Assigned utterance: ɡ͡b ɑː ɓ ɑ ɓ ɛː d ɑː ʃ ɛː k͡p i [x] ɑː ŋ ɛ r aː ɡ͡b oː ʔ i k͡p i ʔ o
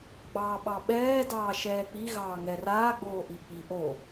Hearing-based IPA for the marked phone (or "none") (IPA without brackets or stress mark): ɣ